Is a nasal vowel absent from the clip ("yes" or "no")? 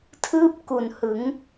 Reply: yes